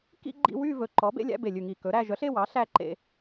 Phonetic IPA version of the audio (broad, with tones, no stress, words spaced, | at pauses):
kḭ˥˧ ɡ͡ǃḭ˥˧wy˥˧ vɵ˨˩ǃɔ˩˥bḛ˥˧ lʲæ̰˥˧be˨˩lʲʉ˨˩ŋi˨˩ kɵ˩˥ɾæ˥˧ ʒœ˩˥ɬe˥˧wɑ˩˥ ɬæ˥˧ǃḛ˥˧